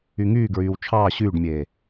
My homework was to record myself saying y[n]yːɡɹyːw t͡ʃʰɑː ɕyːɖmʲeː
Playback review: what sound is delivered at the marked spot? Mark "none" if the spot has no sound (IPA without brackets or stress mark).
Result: ŋ